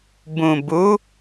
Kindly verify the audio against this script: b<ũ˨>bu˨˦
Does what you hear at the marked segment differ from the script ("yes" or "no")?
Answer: no